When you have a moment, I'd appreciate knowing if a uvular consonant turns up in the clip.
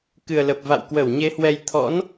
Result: no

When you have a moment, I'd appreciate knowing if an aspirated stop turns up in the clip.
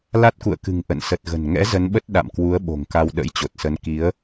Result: no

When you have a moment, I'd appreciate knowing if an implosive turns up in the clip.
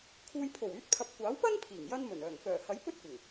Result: no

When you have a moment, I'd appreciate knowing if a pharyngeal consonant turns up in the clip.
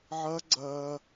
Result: yes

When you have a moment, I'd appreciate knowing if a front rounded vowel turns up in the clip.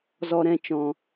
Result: no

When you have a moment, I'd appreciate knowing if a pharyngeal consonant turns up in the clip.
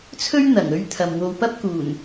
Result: no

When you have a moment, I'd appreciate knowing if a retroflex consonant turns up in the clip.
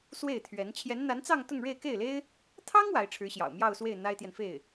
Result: yes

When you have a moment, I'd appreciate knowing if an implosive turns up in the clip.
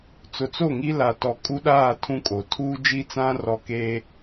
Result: yes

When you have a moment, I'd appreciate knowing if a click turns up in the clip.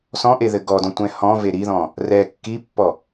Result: no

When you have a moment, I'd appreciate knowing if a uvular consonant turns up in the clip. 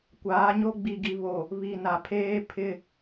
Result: no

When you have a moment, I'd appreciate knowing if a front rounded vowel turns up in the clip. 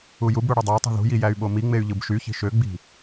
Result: yes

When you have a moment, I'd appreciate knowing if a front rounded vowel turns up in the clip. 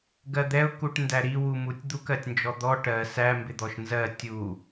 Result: no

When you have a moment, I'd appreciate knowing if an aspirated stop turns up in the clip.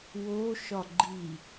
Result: no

